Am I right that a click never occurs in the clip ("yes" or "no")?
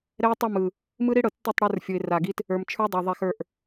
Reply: yes